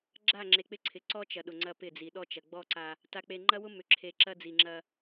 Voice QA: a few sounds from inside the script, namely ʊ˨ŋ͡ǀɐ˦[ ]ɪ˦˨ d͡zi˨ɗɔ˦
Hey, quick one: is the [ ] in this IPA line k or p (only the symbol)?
p